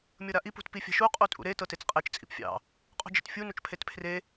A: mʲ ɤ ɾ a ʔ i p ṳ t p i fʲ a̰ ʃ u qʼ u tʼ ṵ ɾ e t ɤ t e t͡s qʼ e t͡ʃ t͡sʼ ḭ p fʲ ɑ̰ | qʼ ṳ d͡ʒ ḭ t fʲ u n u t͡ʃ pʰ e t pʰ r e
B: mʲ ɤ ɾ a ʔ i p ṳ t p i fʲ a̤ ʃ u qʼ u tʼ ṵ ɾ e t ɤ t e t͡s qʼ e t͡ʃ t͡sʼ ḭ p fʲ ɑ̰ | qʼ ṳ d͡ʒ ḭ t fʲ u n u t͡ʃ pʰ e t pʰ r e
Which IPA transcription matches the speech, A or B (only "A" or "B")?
B